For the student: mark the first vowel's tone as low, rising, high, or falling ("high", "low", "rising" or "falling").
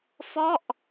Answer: falling